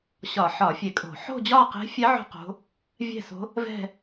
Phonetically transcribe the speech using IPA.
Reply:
ɕɒ˧˩˧ħɒ˧˩˧fʲe˧˩˧kʼo̤˧˩˧ ħo̤˥˧d͡ʑɒ˥˧qe̤˧˥fʲɛ˧˥ ʕo̤˥˧qo̤˧˥ | vʲɛ̤˥˧so̤˧˥ | vɛ̤˥˧

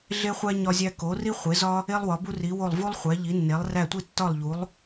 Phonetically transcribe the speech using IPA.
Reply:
ɮe˥χʷæ˥ ɲɒ˥zʲæ˥ ko˩˥ri˥ χʷe˩˥zɒ˥ | e˥lˠwɒ˩˥ bu˥ri˩˥wo˥˨lˠ vu˥lˠ χʷæ˩˥ʎi˩˥nːe˩˥lˠ ræ˥˨ tʷi˥˨tːɒ˥˨lˠ ʎu˩˥lˠ

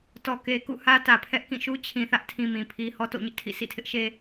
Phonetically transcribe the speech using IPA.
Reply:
tɔ˨ke˨kṵ˦˨ hä˦tä˨pʰɛ˦ʔkĩ˦˨ ʃu˦t͡ɕʰĩ˨θä˦ʔtʰĩ˨ mĩ˨pʰi˦ hɔ˦to̰˦˨ɲɪ˦ʔtʰḭ˦˨ sḭ˦˨tʰɪ˦ʔʃe˦

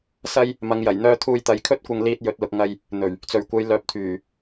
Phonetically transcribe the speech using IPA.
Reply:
sɐ˥j | mɐ˨˧ŋjɐ˨˩j n̪œː˧ t̪ʰuː˧jt̪ɐ˨˧jkʰɵ˥t̚kʷɐ˧ŋ liː˧t̚ jɵ˨t̚lʊ˨k̚ ŋɐ˧j | n̪ɵ˨˩ɥ | t͡sɵ˨˩ɥkʷɐ˨j lœː˨˥p̚t̪ʰyː˨˩

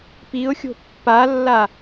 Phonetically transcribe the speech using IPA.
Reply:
piʊ̯xʲo̤ pːalːa

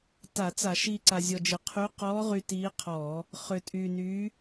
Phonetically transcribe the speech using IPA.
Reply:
ta˧˩˧t͡sa˧˩˧ʃiː˧ ǀa˧zʲɔ˧d͡ʒɪ˧ qʰy˧˥ qɔː˧˥ʁy˧ tiː˧˥qʰɔː˧˩˧ | χʏː˧tʼyː˧nyː˧˥

